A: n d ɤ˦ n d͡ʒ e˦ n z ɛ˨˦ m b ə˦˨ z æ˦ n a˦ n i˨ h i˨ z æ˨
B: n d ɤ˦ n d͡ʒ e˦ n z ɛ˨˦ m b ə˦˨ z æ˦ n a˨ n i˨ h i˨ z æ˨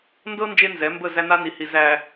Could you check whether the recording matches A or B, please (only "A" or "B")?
A